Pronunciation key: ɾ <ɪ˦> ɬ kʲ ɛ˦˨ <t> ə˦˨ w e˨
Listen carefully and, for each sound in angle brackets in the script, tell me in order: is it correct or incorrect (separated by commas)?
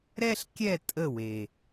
incorrect, incorrect